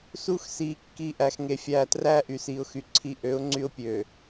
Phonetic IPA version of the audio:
s u˦ x s iː˨ kː i˨ ʔ æ˨ x ŋ e˨ fʲ æː˨ t r æ˦ ʔ y˨ s iː˨ ʊ̯ x y˨ ǀʰ i˦˨ ʔ ø˨˦ ʊ̯ ŋ͡ǀ y˦ ʊ̯ pʲ øː˨

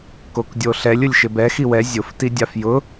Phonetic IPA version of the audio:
k o k dʲ o ɬ ɛ lʲ ʊ lʲ ʃ ɪ b ɛ x i w ɛ zʲ ʊ f t i dʲ a f j ʊ

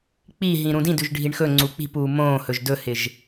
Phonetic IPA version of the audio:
k͡p i ɦ ĩ ɾ ũ d ĩ d ʉ ʒ ɖʱ i ɳ x ɵ ŋ͡ǀ u k͡p i̤ p uː m õː h ɵ ʒ d ɵ h ɪ ʒ

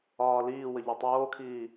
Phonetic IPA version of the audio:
ɒː l iː w ə ʎ o tˤ oː kʰ iː

